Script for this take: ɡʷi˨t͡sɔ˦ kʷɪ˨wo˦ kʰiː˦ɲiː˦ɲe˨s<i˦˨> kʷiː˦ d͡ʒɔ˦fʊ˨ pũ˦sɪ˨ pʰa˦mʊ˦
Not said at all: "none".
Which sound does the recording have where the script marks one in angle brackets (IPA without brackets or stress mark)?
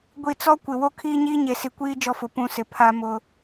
i˨